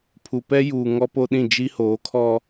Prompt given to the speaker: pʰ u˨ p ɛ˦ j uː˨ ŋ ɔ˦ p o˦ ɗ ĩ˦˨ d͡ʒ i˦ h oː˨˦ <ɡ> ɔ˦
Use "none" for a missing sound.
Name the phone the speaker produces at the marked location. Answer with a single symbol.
kʰ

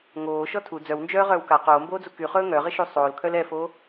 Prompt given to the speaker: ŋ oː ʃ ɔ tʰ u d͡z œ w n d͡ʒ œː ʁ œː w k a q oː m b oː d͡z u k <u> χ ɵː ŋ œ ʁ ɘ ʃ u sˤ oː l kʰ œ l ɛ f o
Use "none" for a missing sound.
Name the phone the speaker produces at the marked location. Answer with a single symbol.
y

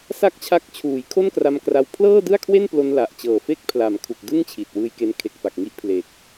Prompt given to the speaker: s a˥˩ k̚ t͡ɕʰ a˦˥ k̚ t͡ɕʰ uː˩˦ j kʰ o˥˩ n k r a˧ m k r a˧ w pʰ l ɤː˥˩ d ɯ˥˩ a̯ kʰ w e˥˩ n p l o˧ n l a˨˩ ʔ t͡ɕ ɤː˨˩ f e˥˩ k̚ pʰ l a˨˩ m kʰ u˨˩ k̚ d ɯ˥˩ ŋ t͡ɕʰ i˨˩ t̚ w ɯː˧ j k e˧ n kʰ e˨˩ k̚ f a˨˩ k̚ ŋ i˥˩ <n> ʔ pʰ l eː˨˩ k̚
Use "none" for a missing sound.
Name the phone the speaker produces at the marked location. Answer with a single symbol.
none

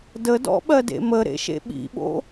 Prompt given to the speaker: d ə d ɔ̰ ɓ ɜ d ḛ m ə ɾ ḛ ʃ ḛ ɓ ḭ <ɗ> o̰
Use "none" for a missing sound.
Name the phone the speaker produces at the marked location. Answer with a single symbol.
ɓ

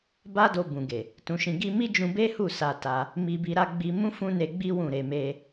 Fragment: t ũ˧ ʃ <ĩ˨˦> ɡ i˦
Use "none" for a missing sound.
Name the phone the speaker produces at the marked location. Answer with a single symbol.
ĩ˧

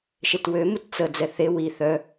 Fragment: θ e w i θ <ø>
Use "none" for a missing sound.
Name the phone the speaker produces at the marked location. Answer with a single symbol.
œ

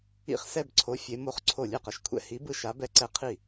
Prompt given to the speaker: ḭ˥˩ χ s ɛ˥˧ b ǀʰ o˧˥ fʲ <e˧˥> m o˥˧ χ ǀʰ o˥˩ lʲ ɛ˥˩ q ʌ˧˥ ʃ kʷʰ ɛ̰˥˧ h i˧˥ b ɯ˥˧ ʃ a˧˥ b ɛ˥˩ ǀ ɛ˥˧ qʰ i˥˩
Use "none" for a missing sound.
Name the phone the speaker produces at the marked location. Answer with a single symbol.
e˧˥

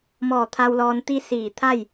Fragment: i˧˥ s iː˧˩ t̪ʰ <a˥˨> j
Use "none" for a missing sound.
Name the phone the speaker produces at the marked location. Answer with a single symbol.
a˥˨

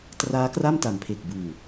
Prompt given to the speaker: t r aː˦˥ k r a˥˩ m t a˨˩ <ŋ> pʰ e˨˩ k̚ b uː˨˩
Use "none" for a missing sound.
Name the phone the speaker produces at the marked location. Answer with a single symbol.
m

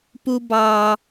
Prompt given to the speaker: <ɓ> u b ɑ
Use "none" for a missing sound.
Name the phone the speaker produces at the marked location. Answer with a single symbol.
p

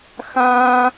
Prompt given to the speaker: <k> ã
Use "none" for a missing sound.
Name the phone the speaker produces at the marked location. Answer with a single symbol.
x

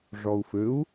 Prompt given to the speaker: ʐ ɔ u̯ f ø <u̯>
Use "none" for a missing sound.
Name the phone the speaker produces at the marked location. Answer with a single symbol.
u̯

